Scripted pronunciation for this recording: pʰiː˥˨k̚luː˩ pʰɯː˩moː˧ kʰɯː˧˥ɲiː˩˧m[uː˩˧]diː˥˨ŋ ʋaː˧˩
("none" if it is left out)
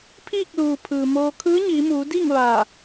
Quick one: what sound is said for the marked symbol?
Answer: uː˩˧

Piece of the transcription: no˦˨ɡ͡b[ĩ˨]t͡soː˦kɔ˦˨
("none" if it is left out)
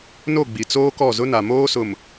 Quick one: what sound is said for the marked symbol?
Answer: i˨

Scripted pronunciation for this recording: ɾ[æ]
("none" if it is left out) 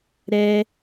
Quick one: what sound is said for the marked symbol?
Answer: ɛ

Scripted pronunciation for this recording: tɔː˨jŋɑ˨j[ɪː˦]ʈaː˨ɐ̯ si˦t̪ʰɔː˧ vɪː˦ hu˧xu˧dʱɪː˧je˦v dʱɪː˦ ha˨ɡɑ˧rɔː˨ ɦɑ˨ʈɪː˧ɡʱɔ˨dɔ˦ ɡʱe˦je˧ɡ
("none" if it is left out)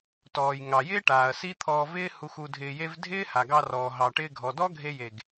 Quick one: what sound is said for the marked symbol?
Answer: ɪː˦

